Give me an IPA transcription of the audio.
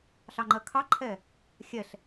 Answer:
ɬɑŋ͡ǃɜkʰɑǃʰɛ | xʲɛɬ

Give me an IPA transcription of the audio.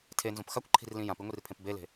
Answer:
tʰenzõp xakʷǃʰi̤rlĩ jãpiŋʷirpʰẽp bele̤

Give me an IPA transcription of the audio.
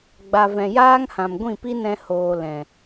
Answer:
ɡ͡ba˨vɛ̃˨jaː˦ŋhã˨m ɡʷĩ˦˨pi˦nɛ̃˧ hoː˨ lɛ̃˨

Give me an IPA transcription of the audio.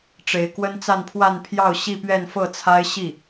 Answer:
ʈ͡ʂe˧˥ɪ̯kwə˥nt͡sa˥˧npʰwa˥˧n pʰjɑ˥˧ʊ̯ ɕi˥˧pɥɛ˥˧nfɤ˥˩t͡sʰa˥ɪ̯ ɕi˥˩

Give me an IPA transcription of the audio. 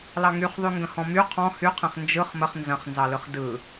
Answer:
lɑŋyχðˤy ŋɡə̃hɔ̃my qʰɔ̃ hyqʰẽχ nd͡ʒɯχ məχ nzɐ̃χnzɑlɯχ dɯ

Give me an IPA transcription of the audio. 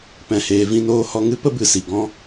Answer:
pɛ̃˨ heː˨ vĩ˧noː˧hɔ˧ ŋɨ˦pə˦bɨ˨si˨ ɡɔ̃˧

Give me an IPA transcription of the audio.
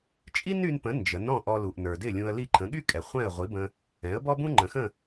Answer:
t͡ʃʼi˥ny˧npə̃˩˥ nd͡ʒə˩˥nɔ̃˥˩ ʔɔ˧lu˩ʔnə˞˩ dɪ˥˩lʲũ˧ə̯li˥˩ ǃʰə̃˩˥ɠy˥kʼɛ˩ χʷɛ̃˥˩ə̯ʁʷi˩˥bə̃˧ | ɛ̃˩˥ə̯bɔ˥bũ˥ ŋ͡ǃə̃˩xə̃˥˩

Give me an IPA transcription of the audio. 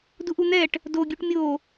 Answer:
duʔun̪ɛʈ | do ɡʲuʈmʲo

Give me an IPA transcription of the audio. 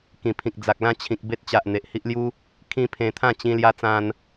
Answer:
kĩ˨˩pʰĩ˨k̚d͡za˨k̚ lã˥˧t͡ɕʰĩ˨k̚ be˦t̚t͡ɕa˨ʔ n̪e˨ʔhi˦ʔlju˦ | kʰĩ˦pʰẽ˧ t̪ʰã˥˧t͡ɕĩ˧lja˧ t͡sã˧n

